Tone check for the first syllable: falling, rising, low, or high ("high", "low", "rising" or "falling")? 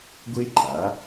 high